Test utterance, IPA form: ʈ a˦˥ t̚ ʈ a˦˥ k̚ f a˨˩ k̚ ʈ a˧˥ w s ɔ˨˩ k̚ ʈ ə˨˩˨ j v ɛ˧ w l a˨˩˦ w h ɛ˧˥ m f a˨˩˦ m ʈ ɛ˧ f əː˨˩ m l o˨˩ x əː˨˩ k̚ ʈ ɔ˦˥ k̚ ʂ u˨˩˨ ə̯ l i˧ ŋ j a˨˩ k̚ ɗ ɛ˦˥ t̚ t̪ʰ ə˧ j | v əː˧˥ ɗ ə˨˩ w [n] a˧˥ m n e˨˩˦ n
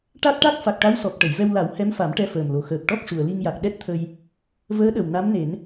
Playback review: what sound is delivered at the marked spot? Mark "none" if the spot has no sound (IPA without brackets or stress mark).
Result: n